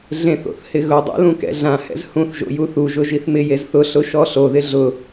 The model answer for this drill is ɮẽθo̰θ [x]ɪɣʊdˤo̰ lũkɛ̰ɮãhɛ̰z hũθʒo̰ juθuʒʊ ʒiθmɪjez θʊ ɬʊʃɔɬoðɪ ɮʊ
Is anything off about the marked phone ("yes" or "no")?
yes